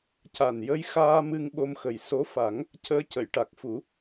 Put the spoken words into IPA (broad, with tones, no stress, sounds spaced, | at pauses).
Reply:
c a˨˩ n j ə˧ j x aː˧ m ɨ˧ ŋ ɓ o˧ m x ə˨˩ j s o˧˥ f a˨˩˦ ŋ | c əː˧ c ə˨˩˨ j ʈ a˨˩ k̚ f u˨˩˦